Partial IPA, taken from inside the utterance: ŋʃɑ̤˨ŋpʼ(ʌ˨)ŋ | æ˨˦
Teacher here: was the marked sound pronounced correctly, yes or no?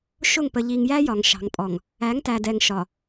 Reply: no